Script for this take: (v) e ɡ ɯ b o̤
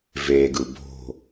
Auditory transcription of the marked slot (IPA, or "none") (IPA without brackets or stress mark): v